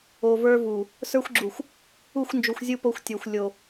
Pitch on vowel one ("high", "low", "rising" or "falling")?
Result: low